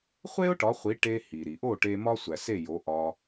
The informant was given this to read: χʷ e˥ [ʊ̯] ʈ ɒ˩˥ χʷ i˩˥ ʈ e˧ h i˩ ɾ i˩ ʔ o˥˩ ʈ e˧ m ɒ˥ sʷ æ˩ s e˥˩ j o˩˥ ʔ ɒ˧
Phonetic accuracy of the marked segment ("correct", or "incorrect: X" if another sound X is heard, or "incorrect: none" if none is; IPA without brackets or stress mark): correct